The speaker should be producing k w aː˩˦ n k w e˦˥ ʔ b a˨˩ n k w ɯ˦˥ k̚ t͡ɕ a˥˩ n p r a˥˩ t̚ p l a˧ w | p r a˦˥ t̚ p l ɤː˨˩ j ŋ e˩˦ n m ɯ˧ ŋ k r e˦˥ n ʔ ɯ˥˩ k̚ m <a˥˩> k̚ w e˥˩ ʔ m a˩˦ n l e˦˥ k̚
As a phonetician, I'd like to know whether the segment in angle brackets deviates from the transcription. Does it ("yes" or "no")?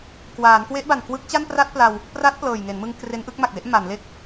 yes